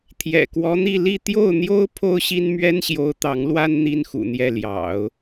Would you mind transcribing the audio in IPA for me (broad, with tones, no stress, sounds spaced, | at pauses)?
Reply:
t̪ʰ j ɛ̰˨˩ k w ɔ˧˥ n̪ i˥˧ l i˥˧ t̪ j o˥˩ ʊ̯ n̪ j o˥ ʊ̯ pʰ o˥ ʊ̯ ɕ i˥ n m ɥ ɛ˥ n ɕ j o˧˥ ʊ̯ t̪ ɑ˧˥ ŋ l w a˥ n n̪ i˥ n x ṵ˨˩ n̪ j ɛ˥˩ l j ɑ̰˨˩˦ ʊ̯